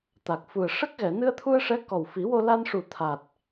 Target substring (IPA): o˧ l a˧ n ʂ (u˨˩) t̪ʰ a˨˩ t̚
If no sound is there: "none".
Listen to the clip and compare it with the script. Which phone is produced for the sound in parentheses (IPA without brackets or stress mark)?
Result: u˨˩